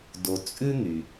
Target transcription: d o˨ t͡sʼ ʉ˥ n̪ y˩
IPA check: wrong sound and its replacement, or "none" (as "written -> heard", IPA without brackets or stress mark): none